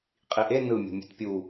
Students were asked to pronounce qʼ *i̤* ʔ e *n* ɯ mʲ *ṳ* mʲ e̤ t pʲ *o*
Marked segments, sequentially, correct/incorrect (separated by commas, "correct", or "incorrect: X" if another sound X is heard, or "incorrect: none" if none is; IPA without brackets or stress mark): incorrect: i, correct, incorrect: o̤, incorrect: u